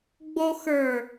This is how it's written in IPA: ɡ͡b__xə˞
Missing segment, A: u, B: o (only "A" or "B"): B